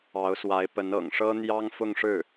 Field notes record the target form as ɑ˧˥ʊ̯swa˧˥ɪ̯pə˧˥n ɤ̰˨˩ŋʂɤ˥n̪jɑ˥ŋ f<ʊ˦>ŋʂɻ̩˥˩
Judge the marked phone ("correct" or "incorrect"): incorrect